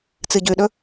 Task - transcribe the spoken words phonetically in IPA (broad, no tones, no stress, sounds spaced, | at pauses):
t͡s ɨ ɟ ʉ ɗ ɵ